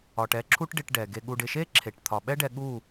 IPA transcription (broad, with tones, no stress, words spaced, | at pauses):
ɒ˨ʈɛ˦˨ ǁʰu˦ʈɖɪ˧ʈ ɖɛ˨ɡe˧ ɠu˨ɖɪ˨ʃe˦ ǁʰe˨ʈ t̪ʰɒ˨ ɓɛ˦ɖɛ˧ ɠu˦˨